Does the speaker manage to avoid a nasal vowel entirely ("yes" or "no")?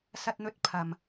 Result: yes